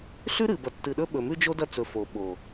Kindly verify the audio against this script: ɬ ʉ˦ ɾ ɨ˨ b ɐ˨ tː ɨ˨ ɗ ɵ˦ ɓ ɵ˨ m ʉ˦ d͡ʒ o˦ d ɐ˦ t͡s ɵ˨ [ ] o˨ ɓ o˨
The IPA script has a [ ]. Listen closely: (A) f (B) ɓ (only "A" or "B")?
A